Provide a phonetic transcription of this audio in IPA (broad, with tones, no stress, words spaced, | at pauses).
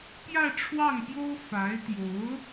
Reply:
pjä˥˧ʈ͡ʂʰwɑ˥˩ŋpjo˥ʊ̯ fa˧˥ɪ̯t̪jo˧˥ʊ̯